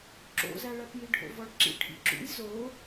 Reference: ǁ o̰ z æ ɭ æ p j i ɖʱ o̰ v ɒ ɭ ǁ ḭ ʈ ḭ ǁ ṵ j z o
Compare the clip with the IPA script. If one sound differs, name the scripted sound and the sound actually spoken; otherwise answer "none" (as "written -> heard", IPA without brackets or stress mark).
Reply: ʈ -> ʈʰ